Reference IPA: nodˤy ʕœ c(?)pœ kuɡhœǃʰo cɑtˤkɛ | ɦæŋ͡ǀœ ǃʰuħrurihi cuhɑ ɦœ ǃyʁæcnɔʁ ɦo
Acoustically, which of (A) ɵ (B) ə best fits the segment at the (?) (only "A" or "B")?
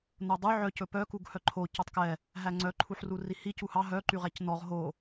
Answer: A